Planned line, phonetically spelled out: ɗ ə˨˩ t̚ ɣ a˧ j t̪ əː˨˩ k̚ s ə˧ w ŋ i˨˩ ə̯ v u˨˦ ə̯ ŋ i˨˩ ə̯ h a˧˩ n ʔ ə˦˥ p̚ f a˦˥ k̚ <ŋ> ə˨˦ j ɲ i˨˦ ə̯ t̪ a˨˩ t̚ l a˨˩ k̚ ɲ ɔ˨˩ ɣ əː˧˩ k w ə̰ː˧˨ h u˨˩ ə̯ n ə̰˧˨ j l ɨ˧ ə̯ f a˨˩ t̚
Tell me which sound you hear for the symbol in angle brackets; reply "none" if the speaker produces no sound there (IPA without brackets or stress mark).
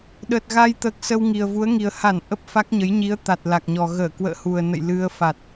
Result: ɲ